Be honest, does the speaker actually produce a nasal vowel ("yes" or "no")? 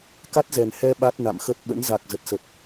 no